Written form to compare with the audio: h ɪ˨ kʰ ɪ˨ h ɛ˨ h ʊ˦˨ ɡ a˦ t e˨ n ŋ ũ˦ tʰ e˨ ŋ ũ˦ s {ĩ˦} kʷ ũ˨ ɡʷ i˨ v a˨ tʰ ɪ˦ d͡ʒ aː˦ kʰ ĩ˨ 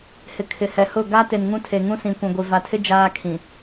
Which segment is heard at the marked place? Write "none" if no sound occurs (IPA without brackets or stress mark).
ĩ˨